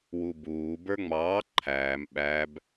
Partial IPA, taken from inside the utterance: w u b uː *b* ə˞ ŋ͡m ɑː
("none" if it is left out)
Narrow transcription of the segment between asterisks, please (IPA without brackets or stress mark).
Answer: b